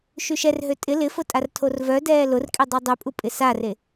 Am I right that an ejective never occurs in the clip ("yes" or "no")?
no